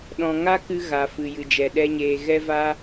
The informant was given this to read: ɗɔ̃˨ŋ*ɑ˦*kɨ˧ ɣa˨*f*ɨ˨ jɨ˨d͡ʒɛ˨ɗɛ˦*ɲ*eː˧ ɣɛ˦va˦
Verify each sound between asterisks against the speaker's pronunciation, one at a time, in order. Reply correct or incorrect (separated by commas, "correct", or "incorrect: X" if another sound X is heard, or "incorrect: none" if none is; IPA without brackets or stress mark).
incorrect: a˦, correct, correct